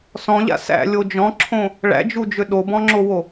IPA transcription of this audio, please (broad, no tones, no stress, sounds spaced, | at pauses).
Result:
s ɔ̃ ʎ a̰ s æ̰ lʲ o d͡ʒ ɔ̃ ǁʰ õ | ɭ æ̰ d͡ʒ u d͡ʒ ø ɗ o b ɔ̃ ŋ͡ǁ o w o